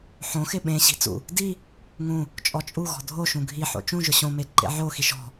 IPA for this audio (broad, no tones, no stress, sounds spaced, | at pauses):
ħ õ x ɪ ɓ ẽ ɕ i̤ t͡s ṵ | d i | ŋ ũ | t͡ʃʼ ɔ t͡ʃʼ u ɣ ɔ̤ dʱ o ʃ ũ ɡʱ i ħ o̰ t͡ʃ ũ ʒ ʊ ɕ õ m e ǃ ḛ ʕ o x i ʃ ɔ̤